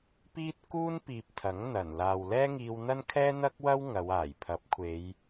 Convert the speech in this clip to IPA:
p iː˥ t̚ k uː˥ n p iː˨ p̚ t̪ʰ ɐ˨˥ ŋ n̪ ɐ˨˩ n l aː˨ w l ɛː˥ ŋ iː˧ w n̪ ɐ˥ n kʰ ɛː˥ n̪ ɐ˥ k̚ w ɐ˥ w ŋ ɐ˨˧ w aː˨˩ j pʰ ɐ˨˥ p̚ kʷʰ e˨˧ j

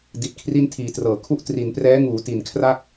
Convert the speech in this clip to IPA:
d i˨˩ t̚ kʰ r i˥˩ n tʰ iː˨˩ t r ɤː˩˦ kʰ u˥˩ ʔ t r i˩˦ n p r ɛː˦˥ ŋ uː˩˦ t i˨˩ n kʰ r a˥˩ k̚

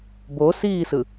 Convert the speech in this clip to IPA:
b o s iː s ɯ

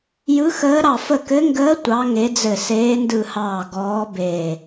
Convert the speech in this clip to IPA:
j ɯ˨˦ x əː˨˦ ɾ ɑ˧˩ f ə˧˩ k ɘ˨˦ ŋ ɡ əː˨˦ tʷ ɑ˨˦ ŋ e˨˦ d͡z ɘ˧˩ s eː˨˦ n d ɯ˧˩ h ɑː˧˩ ɡ ɔː˨˦ b eː˧˩

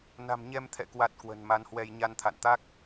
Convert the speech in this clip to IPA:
n a̤˨˩ m ɲ ɛ˧ m t̪ʰ ɛ̰˧˨ k w a˨˩ t̚ k w ə̤˨˩ n m a˨˦ n h w ɛ˧ j ɲ a˧ n t̪ʰ a̰˧˨ n t̪ a˦˥ k̚

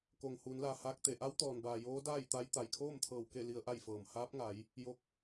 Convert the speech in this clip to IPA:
k oː˩ ŋ h uː˩˧ n l aː˩ h aː˧ k̚ t̪ e˩ ʔ a˧˥ w t̪ ɔː˩ n b aː˩ j oː˧˥ d aː˥˨ j t̪ a˧˥ j t̪ a˩ j kʰ oː˥˨ m t̪ʰ ɤː˧˩ w k e˥˨ l i˧ ə̯ ʔ a˥˨ j f ɤː˧˩ m h aː˧˥ p̚ ŋ a˩˧ j | j o˧ k̚

